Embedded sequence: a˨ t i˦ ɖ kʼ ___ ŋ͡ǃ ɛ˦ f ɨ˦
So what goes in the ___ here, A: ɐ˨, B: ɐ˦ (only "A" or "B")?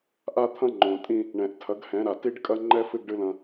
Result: B